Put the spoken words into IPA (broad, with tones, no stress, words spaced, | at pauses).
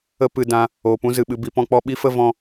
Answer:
ə˦ pɨ˧dã˧ | oː˨pũ˦ zɨ˨ɓɨ˧ bi˧pɔ̃˦k͡pɔ˦ ɓi˦fə˦ vɔ̃˦